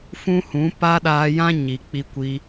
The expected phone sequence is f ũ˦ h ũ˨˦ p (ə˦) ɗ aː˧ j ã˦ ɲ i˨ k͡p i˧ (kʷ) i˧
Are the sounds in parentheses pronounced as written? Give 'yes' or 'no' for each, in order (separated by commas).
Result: no, yes